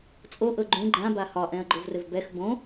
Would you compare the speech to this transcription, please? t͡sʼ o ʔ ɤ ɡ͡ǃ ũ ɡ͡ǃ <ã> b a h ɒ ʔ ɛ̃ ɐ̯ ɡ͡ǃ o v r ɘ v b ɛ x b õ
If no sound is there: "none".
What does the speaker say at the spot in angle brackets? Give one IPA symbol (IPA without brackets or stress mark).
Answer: ã